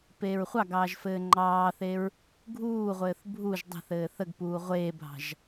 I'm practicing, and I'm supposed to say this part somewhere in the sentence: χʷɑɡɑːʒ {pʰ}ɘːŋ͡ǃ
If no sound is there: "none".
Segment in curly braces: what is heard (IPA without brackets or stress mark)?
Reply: f